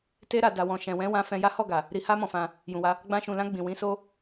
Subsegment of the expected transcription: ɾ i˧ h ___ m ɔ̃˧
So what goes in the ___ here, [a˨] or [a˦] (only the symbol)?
a˦